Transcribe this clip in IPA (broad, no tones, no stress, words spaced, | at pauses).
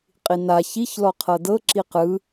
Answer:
qʼina çiç lɔqʰɤdɤ ǁiqɯ